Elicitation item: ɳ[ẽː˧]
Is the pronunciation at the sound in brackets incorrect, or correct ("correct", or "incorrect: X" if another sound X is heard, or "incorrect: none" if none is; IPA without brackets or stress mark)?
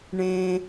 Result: correct